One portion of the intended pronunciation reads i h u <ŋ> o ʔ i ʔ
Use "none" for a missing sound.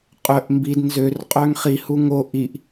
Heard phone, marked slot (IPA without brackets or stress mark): ŋ